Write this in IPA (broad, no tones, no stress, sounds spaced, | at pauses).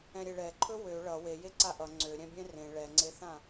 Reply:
ɛ̃ ɾʲ e ɭ ɛ ǃʰ ɵ w ø ɭ ʌ w e j e ǀ a ʔ ʌ ŋ͡ǀ ø ɾʲ ɛ̃ bʲ ɛ̃ r ẽ ɭ ɛ ŋ͡ǀ e θ ã